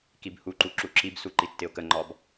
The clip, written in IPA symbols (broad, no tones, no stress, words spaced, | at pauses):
kibhuǃu ǁuǁibsu ǃitːɪʊ̯kəŋ͡ǃɒb